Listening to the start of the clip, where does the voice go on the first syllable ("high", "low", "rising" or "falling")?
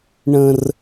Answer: high